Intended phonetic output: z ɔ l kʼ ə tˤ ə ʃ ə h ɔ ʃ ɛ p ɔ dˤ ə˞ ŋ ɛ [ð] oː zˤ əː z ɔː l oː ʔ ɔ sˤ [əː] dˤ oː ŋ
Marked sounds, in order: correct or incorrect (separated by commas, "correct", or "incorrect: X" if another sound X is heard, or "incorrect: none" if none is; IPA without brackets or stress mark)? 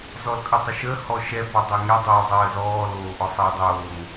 incorrect: dˤ, correct